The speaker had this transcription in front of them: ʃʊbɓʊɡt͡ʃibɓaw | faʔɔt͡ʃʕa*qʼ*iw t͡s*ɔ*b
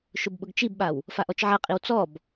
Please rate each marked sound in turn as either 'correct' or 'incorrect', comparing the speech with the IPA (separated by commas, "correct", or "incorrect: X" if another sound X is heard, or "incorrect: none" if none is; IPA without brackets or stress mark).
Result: correct, correct